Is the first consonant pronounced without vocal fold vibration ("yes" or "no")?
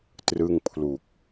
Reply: yes